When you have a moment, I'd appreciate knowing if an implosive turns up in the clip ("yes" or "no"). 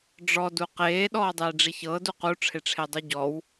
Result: yes